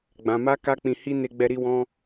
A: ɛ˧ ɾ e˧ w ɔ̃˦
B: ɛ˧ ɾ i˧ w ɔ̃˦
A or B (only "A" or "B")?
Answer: B